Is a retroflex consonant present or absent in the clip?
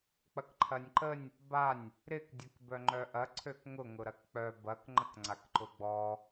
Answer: absent